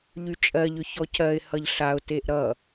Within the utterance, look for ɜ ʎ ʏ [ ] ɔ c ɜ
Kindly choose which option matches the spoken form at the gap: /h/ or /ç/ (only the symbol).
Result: ç